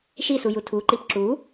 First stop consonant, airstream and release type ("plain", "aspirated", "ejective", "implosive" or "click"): aspirated